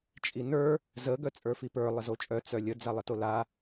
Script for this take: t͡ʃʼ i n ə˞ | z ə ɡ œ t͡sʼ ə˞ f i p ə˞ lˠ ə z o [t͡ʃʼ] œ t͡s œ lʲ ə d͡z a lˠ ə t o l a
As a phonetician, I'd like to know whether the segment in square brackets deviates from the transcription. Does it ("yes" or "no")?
no